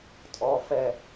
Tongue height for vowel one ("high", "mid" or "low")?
mid